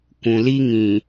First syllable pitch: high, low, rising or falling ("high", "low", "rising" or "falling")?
low